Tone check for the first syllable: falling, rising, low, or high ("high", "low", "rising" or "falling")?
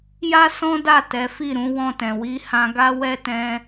high